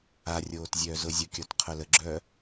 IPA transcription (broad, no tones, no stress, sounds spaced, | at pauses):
a rʲ oː t zʲ œː z ʊ zʲ ʊ kʲ ɔ t qʰ œ l ə ɡ͡ǁ œː